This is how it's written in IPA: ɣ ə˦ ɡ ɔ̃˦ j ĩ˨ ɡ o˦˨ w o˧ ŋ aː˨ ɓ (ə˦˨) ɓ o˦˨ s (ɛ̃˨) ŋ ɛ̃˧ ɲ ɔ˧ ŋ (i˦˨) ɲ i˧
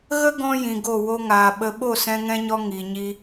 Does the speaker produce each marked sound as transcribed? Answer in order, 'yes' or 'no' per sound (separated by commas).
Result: no, no, no